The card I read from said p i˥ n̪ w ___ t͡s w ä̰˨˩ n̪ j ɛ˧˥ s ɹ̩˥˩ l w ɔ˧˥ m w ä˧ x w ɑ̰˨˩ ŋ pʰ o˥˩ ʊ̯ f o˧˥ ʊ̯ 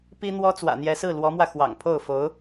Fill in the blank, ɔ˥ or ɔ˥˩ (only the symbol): ɔ˥